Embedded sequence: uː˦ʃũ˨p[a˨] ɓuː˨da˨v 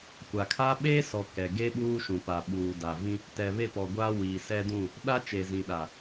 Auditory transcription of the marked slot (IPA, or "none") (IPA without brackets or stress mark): a˨